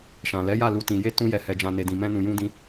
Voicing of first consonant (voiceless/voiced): voiceless